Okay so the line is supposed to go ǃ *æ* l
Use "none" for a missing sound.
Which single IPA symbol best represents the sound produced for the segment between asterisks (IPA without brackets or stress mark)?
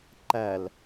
æ